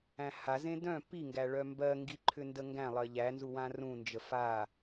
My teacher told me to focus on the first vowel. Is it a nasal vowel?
yes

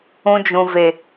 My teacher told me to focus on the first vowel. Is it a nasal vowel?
yes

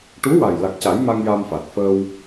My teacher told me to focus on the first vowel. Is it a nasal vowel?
no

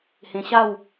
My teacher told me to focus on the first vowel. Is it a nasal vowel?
yes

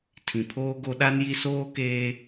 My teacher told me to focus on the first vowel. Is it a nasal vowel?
yes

